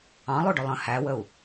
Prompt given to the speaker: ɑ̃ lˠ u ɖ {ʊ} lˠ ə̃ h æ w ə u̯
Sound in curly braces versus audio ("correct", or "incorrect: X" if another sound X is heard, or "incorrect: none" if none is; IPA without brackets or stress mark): correct